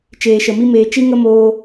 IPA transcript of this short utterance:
t͡ʃeː˨ʃə˨mi˦ meː˧ t͡ʃi˦ŋə˦moː˧

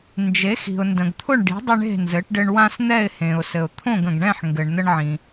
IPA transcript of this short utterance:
nd͡ʒe˩˥ xi̤˩ʊ̯ndə̃˩ɡt̪ʰʊ˥˨ɳ ɖi̤˩˥ dˤə˦ɳe̤˥˨ nzɘ˩˥ʈɖɘ˦ɳ wã˦sn̪ɛ˥˨ɪ̯ hẽ˩ʊ̯sɘ˩ʊ̯ t̪ʰõ˥˨ɡə̃˩ɡɳɛ̃˥˨ħ ŋɡɘ˩ɳ n̪ə˦ɳʕĩ˩

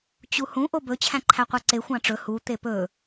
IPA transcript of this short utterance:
t͡ɕuhũ ʔobɵ t͡ɕʰæ̃ǃʰæqʷɑǀe xʷɑ̃ʈ͡ʂɵ hu t̪epɵ

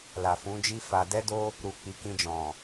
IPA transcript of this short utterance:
la˨fũ˨˦d͡ʒi˦ fa˧ dɛ˦do˦ | ɾu˨ k͡pi˨˦kĩ˧d͡ʒɔ̃˨

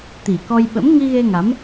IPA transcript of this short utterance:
t̪i˨˩kɔ˧jɓə̰˧˥m ŋi˧ɣe˧ŋa˨˦m

